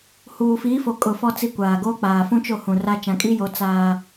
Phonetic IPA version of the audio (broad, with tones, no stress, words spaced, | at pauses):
huː˨fiː˨˦fo˨kʼʊ˨ fɔ˦t͡si˦˨kʷaː˨ ɡoː˦k͡paː˨ fũ˦t͡ʃo˦˨ hũ˨ra˦ t͡ʃã˨kʼi˦jo˨˦ t͡saː˦